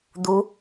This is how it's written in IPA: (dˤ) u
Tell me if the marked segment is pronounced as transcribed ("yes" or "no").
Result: no